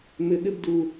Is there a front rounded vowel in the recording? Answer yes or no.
yes